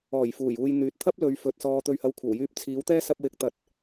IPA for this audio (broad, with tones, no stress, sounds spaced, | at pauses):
ɔː˨˩ j f uː˨˩ j uː˨ j n̪ yː˨ t̚ t̪ʰ ɐ˥ p̚ l ɵ˨˧ ɥ f ɵ˨ t̚ s ɔː˧ t̪ ɵ˧ ɥ h ɐ˧ w kʷʰ ɐ˨˩ w j yː˧ p̚ t͡sʰ iː˨˥ w t̪ ɛː˥ s ɐ˧ p̚ w ɪ˨˥ k̚ t̪ ɐ˨ t̚